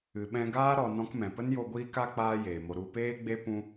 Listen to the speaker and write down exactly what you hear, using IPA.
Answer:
ɨ˨ɓɛ̃˧ɡaː˦ ɾɔ˨ nɔ̃˧kmɛ̃˨pə˦n jo˧ɡʷiː˦ka˦ k͡paː˦jeː˨mo˧ ɾu˧peː˦ɡ͡be˦ pũ˦

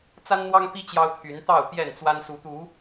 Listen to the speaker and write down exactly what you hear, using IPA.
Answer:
t͡sa˦nn̪wɑ˦ŋpi˦ t͡ɕjɑ˦ʊ̯t̪ʰy˨˦nt̪ɑ˥˨ʊ̯ pjɛ˥˨nt͡swa˦n su˨˦t̪u˨˦

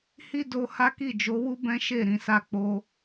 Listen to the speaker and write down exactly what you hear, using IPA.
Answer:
hi˦do˧ ha˦ki˦˨d͡ʒo˨˦wu˦ bɛ̃˦ʃe˦˨ ɾĩ˨sa˧k͡po˧

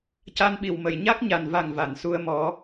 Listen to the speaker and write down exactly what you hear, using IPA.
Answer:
ca˧nɓi˨˩˨wmə˨˩˨j ɲa˦˥k̚ɲa˨˩nva˨˩ŋ va˨˩˨nsu˧ə̯ mɔ˨˩˦

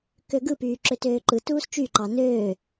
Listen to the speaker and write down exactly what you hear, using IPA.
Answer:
køɡɯpyː ǁøtøːǃɯtuːs t͡ʃyǃɑ nøː

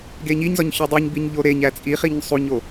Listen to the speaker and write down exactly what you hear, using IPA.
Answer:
ɡeɲiɲzɒɲ çɒdˤiɲbiɲ ʎoɾeɲæ t͡sʼiχiɲ sˤuɲo

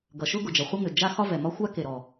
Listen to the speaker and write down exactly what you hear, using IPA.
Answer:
ɡʌ˩ʃʊ˥ ɡʊ˩d͡ʒʌ˩ χʷə˥ŋʏ˩ d͡ʒa˥ xɒ˥vɛ˩mɒ˥ xʷa˥ke˩ɾɔ˩

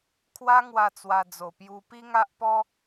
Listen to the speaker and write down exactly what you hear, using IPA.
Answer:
kʰwa˦ŋwa˧ t͡swa˧d͡zo˨˩pju˧ pi˦ŋa˦ʔ pɔ˦

